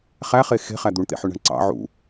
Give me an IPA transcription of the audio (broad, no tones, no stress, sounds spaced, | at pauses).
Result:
χ æ χ e x e̤ χ æ d̪ u ɳ t̪ ḛ ħ y ɳ æ̤ ɳ ǀ ɑ̰ ʕ ṵ